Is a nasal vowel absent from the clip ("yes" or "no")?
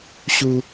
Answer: yes